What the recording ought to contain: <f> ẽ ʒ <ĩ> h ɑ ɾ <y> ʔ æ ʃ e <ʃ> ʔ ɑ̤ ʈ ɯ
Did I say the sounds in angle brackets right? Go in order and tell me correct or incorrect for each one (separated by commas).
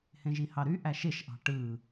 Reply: incorrect, incorrect, correct, correct